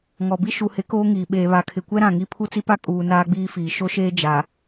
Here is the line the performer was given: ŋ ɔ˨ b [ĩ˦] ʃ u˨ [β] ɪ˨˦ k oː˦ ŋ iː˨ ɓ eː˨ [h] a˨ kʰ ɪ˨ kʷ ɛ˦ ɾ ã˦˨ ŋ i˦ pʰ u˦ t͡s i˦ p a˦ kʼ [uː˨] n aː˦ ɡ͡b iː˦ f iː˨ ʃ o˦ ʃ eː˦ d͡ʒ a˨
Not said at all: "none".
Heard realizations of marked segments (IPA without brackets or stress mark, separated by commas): i˦, h, β, uː˨